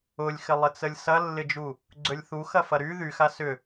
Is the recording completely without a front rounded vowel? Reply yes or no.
no